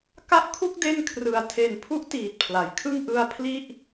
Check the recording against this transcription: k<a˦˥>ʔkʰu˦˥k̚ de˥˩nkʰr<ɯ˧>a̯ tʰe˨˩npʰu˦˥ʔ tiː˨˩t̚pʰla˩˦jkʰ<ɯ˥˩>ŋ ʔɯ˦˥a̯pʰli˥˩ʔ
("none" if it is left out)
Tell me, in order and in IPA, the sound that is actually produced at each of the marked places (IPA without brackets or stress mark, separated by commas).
a˦˥, ɯ˨˩, ɯ˥˩